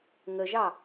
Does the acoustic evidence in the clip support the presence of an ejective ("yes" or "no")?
no